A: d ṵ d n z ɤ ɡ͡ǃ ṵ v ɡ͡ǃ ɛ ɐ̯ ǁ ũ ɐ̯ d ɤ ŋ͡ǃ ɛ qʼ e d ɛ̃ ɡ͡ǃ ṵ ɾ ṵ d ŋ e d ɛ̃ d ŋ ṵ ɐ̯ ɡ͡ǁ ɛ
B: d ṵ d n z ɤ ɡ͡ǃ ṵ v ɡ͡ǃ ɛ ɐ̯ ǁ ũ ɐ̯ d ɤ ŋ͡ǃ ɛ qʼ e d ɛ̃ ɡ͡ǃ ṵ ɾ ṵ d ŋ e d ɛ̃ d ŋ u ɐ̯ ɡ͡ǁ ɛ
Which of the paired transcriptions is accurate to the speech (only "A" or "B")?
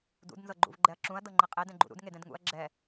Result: A